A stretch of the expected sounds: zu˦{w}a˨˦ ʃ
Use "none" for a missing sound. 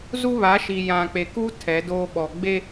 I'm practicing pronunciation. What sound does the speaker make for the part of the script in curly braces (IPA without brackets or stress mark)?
β